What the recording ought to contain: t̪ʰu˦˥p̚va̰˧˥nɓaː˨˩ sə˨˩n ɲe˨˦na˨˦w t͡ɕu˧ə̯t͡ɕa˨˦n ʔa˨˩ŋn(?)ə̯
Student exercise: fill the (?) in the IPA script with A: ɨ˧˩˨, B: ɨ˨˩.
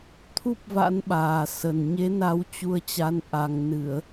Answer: A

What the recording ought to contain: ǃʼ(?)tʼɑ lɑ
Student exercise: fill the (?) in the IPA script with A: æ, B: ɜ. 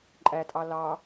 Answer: A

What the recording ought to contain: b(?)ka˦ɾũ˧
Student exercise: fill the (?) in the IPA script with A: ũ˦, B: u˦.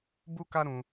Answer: B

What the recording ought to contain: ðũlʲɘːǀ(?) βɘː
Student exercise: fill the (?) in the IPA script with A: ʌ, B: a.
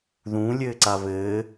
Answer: B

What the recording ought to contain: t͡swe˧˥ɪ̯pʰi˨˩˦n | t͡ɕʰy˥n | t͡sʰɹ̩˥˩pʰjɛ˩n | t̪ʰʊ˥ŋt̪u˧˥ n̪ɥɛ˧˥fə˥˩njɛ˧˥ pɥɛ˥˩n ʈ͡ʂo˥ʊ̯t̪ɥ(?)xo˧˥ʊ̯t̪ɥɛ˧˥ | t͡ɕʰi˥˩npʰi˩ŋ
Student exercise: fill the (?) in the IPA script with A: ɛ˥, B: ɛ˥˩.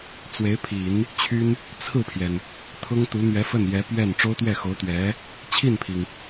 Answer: B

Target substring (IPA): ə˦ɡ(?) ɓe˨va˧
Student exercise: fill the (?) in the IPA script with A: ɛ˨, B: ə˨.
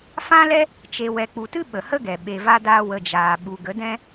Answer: A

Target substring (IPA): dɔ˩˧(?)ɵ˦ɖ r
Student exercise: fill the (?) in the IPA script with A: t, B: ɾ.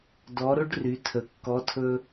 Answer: B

